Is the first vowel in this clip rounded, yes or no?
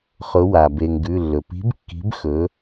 yes